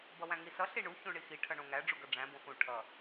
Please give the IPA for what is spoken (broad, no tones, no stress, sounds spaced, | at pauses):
b ʌ w æ̃ ŋ i s ʌ ɬ i ɳ u ç ũ ɳ i x i ʈʰ ʌ ɳ õ ŋ æ ɖ͡ʐ u ɡ ʌ ɖ͡ʐ æ̃ b õ x ũ ʈʰ ʌ